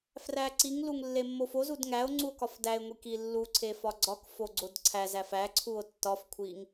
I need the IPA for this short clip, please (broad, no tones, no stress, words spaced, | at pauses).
fræǀiŋluŋ lːemːofozud ŋæo̯ ŋ͡ǀuo̯kɒfdæe̯ŋʷi kilːuǀʰe fɒɡ͡ǀɒkfo ɡ͡ǀodǀʰæzæf æǀʰuo̯ tːɒfkʷʰiŋ